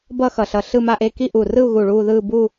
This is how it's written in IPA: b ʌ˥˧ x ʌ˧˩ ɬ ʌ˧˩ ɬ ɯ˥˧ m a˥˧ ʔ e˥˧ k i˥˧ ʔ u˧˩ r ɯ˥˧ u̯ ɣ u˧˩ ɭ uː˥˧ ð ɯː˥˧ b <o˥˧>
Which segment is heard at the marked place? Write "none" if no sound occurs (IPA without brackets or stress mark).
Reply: u˥˧